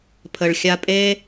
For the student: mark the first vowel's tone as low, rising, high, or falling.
low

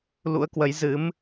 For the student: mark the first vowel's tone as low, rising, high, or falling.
rising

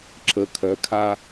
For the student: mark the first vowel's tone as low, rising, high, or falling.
rising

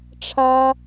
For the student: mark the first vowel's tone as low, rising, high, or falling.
high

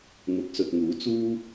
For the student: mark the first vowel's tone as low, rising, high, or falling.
rising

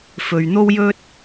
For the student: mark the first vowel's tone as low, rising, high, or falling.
low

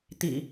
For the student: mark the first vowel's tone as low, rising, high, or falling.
low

